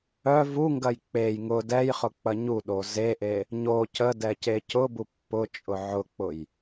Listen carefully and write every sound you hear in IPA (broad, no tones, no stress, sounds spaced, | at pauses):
œ v u ŋ ɡ ɐ j k͡p e j ŋ ʊ d ɛ j χ ʊ k͡p ɐ ɲ u ɗ o z e ʔ e | ɲ o c ə d ɛ c e c ʊ b u pː ʊ t͡ʃʼ ʊ ʕ ʊ k͡p ʊ j